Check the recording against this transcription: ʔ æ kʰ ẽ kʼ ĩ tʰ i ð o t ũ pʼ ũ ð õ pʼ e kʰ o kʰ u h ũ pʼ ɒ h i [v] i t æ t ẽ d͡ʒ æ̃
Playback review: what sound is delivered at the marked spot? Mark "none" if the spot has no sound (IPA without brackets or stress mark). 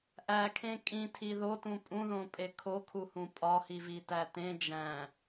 v